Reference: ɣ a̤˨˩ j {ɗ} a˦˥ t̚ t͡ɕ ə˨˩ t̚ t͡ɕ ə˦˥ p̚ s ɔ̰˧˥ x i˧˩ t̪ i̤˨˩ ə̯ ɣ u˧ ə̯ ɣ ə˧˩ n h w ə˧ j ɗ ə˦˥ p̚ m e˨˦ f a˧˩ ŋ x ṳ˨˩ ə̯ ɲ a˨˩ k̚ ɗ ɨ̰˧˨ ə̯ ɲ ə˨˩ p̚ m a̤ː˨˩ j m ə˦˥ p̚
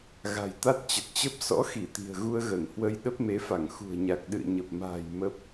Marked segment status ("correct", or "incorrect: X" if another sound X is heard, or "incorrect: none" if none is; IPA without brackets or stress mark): incorrect: t̪